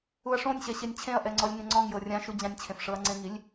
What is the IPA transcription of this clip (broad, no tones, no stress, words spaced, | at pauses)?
uɐ̯ʂõnʲɕɛ ɕenʲt͡ɕʰẽɐ̯ʔɛ ŋ͡ǀɔlʲŋẽŋ͡ǀɔ̃ŋjɤ rʲãʃ ud͡ʑãnʲt͡ɕʰẽf ʂɤɐ̯ŋ͡ǀẽŋilʲ